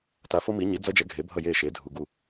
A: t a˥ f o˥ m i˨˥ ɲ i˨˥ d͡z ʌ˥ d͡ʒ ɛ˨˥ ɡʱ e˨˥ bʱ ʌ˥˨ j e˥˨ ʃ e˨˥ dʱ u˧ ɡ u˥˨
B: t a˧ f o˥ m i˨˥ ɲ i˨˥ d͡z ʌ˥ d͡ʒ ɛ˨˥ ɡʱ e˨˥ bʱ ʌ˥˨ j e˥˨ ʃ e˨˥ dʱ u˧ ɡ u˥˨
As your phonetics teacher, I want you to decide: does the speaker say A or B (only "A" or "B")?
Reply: B